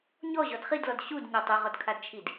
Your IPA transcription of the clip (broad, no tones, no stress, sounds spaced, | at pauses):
ɲ ɔ ʑ ɔ d χ i d l ɔ d ɕ u d ɲ ɔ tˤ ʏ ʁ ɔ d kʰ a d t͡ʃʰ i d